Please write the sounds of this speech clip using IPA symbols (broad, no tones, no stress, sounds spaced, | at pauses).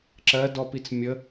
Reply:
ǁ ɜ d ɔ p i t͡s mʲ ə